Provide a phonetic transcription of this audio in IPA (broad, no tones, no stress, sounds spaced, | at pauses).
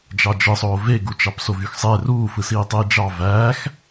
d͡ʒ ɑ d͡ʒ ɯ sˤ oː v e ɡ u t͡ʃ ɑ p s o v y x sˤ e r uː f ɯ s iː tˤ iː d͡ʒ ɑ v æː x